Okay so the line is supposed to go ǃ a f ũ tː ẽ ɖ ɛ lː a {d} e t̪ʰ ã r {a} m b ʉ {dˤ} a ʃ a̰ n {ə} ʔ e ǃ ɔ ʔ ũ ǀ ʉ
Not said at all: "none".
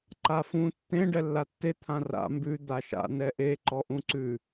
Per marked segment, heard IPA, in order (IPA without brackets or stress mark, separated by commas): tː, a̰, d̪, ɛ